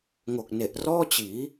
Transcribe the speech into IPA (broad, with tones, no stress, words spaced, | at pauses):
ŋo˨˩k̚ne˨˩ʔ rɔː˥˩t͡ɕiː˩˦